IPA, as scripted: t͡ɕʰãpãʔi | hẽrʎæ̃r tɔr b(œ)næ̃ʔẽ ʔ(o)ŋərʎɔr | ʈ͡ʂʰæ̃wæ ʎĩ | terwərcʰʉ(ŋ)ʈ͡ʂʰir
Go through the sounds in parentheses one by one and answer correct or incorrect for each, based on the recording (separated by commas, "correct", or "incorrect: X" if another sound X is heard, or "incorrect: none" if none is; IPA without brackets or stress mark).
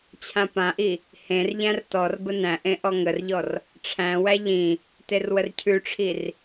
incorrect: ə, incorrect: ɔ, incorrect: none